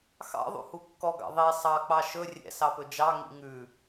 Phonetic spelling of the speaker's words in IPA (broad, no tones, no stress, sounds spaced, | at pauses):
x ɑ̰ ðˤ ṵ h u kː ɔ ɡ ɑ̰ ðˤ i sˤ ɑ k͡p ɑ ʃ ɵ rʲ ɛ̰ s ɑ p ɵ d͡ʒ ɑ ŋ ḭ ŋ ʉ